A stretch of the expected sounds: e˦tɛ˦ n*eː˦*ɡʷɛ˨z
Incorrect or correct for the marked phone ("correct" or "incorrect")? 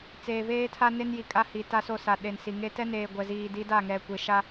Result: incorrect